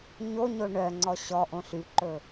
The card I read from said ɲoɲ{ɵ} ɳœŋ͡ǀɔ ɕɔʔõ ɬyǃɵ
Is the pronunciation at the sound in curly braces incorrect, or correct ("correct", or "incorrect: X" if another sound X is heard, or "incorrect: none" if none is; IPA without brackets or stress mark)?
incorrect: o